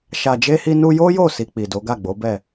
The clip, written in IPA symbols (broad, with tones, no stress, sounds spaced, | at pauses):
ʃ a˨ d͡ʒ e˧ h i˧ n u˧ j o˦ j o˦˨ s i˧ k͡p i˨ d o˨˦ ɡ a˦˨ ɡ͡b o˨˦ b ɛ˦˨